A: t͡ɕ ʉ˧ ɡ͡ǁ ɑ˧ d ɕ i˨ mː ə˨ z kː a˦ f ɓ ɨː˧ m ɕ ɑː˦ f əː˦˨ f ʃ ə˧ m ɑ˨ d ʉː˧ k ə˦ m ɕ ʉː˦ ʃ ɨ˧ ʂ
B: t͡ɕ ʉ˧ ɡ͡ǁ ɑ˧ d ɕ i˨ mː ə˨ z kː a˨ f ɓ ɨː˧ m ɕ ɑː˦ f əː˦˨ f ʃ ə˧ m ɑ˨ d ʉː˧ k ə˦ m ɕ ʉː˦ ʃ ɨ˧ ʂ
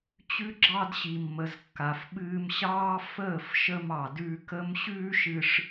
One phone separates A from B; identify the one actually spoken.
B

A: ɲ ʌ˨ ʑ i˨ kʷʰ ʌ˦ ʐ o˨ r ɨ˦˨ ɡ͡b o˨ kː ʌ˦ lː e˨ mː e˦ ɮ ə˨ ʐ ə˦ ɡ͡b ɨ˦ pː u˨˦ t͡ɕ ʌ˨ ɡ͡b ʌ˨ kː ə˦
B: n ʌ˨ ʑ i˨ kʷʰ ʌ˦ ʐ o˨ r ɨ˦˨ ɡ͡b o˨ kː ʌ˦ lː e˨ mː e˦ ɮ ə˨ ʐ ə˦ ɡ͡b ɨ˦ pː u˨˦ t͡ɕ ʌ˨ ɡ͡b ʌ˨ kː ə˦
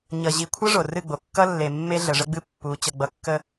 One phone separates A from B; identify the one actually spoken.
A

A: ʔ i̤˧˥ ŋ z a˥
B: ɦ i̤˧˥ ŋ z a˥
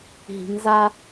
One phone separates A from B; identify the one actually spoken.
B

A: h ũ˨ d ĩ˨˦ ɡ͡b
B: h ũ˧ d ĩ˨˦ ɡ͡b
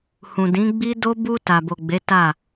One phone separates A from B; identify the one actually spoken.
A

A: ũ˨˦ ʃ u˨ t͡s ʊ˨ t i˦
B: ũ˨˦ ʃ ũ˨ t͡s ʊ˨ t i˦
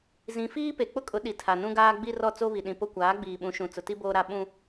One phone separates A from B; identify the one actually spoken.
B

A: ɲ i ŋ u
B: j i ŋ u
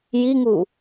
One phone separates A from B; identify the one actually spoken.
B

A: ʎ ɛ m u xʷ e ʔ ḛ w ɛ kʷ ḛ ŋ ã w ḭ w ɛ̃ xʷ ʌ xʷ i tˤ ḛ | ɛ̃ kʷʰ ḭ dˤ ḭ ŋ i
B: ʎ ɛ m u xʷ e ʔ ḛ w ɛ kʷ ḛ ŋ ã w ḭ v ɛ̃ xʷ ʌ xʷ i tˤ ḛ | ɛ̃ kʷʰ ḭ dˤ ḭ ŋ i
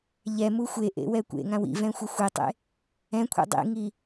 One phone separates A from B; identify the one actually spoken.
B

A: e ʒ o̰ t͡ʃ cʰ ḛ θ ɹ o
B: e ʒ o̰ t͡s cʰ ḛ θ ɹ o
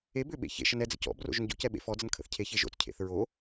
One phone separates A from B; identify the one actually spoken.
B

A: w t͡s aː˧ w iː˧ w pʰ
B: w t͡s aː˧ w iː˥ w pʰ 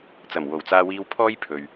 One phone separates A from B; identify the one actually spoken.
A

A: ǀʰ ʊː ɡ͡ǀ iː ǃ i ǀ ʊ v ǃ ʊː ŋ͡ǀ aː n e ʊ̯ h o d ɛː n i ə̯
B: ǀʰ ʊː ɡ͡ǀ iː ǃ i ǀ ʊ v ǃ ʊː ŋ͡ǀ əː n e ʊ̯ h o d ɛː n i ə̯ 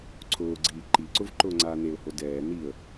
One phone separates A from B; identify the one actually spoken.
A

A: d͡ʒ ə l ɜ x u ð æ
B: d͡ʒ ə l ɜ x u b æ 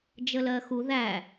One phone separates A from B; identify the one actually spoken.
A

